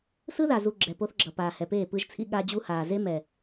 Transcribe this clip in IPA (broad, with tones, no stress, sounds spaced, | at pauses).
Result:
s ɯ˦ ð a˨ z u˨ ɡ͡ǁ ɛ˨ p o˦ θ ɡ͡ǁ ʌ˨ p aː˨ h ɛ˨ p eː˦˨ p ɯ˦ ʒ t͡sʰ ḭ˦ ɠ a˦ d͡ʑ u˦ h aː˨ z e˦ m ɛ˨